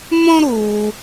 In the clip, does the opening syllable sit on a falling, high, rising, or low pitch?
high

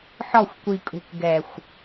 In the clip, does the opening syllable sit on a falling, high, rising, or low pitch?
falling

